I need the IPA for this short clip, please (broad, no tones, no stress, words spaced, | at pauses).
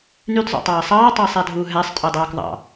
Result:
nydzˤo̰tˤɑː sˤɑːtˤɑːsˤædʱuː ɦæsˤtʼodˤɑːk ðˤɑ̰